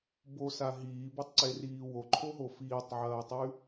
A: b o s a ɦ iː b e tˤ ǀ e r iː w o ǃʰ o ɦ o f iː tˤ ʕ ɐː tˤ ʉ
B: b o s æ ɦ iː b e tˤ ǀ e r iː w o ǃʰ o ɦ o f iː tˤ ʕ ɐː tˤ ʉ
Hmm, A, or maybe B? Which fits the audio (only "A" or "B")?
A